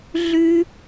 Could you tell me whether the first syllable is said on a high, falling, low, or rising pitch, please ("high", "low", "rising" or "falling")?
high